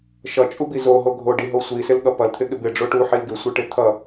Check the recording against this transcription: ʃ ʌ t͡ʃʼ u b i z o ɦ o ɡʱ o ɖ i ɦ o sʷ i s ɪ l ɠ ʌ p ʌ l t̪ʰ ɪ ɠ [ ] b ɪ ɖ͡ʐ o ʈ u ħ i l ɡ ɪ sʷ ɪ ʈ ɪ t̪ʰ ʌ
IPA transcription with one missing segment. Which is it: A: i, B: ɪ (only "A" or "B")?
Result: B